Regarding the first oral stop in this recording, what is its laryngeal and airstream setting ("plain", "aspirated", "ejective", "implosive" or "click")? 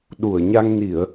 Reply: implosive